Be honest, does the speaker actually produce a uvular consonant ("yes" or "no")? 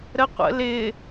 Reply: yes